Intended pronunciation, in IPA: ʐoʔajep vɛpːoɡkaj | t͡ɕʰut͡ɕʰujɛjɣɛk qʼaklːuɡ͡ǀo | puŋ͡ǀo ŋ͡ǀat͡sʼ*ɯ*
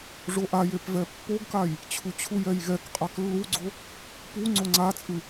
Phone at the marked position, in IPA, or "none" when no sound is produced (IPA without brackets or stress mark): ɯ